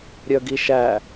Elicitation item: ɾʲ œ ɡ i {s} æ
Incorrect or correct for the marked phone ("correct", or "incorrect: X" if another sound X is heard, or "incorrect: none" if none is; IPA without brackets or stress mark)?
incorrect: ʃ